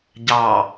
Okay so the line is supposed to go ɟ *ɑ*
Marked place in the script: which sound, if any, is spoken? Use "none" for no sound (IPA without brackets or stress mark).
ɑ